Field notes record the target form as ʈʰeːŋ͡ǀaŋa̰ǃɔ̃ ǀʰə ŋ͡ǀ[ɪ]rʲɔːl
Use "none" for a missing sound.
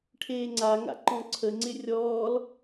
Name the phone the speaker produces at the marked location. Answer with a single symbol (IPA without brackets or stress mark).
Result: ɪ